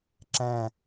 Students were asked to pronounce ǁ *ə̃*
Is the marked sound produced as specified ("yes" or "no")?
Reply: no